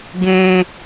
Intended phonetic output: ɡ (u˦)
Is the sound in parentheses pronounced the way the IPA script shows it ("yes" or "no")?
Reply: no